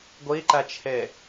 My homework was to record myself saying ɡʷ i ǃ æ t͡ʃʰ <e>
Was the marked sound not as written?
no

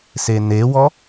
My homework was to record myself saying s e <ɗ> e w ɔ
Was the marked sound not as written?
yes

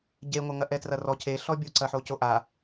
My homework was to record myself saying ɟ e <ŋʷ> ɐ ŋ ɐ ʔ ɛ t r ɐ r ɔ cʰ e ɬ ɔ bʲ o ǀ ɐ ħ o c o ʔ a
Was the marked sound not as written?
no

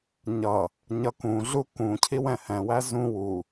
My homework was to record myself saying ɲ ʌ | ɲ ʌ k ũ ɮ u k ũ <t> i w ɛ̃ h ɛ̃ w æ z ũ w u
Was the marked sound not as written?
yes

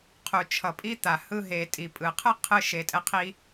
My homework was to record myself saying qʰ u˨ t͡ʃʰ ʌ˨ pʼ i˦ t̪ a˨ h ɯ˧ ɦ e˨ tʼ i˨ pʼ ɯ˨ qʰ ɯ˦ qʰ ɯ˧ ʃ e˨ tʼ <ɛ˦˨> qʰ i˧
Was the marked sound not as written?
yes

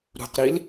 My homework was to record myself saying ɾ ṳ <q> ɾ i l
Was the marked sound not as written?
no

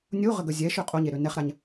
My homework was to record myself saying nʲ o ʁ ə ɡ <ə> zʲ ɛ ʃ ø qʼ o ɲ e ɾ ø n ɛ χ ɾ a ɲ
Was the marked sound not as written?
no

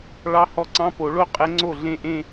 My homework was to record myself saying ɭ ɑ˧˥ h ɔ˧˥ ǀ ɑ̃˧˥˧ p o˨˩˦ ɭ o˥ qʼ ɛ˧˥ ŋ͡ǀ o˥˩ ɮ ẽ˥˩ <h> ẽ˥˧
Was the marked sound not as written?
yes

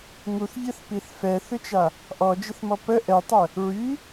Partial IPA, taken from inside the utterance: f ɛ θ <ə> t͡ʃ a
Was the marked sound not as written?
yes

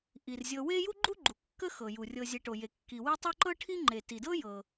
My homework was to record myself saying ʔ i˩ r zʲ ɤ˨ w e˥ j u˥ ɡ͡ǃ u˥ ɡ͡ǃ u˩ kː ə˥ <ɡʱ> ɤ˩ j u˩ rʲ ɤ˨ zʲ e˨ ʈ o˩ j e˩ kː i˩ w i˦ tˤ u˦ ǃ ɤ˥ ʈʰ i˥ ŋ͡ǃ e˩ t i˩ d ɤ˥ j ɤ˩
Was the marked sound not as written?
yes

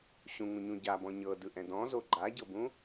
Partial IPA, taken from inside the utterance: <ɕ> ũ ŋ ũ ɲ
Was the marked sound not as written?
no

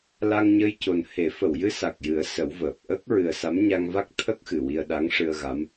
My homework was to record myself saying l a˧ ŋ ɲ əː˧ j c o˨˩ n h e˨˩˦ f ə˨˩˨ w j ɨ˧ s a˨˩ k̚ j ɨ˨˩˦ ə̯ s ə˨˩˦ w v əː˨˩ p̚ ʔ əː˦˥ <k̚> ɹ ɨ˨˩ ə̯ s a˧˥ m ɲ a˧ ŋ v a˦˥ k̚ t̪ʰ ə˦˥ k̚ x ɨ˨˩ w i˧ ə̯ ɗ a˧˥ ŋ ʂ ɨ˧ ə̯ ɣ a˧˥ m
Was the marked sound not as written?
no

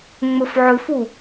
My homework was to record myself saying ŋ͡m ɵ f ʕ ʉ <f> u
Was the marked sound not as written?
no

